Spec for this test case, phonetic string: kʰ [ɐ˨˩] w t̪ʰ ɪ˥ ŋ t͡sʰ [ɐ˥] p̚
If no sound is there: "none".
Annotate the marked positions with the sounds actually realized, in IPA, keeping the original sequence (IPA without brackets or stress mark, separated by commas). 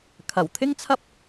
ɐ˨˩, ɐ˥